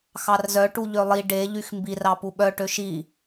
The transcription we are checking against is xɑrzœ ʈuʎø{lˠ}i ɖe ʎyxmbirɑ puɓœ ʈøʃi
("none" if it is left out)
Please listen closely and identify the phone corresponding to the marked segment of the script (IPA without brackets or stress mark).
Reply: lˠ